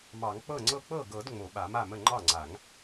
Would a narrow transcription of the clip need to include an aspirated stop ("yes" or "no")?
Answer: no